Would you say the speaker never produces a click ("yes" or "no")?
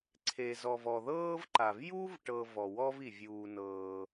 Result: no